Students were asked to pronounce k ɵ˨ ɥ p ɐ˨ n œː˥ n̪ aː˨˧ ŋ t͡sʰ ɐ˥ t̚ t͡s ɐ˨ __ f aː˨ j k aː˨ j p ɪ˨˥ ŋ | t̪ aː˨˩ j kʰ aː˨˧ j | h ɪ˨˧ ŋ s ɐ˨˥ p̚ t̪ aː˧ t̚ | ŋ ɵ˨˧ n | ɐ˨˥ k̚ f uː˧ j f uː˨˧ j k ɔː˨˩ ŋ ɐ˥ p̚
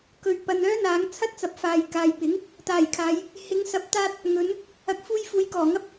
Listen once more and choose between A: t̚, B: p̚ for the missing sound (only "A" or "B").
B